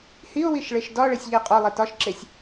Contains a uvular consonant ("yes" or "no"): yes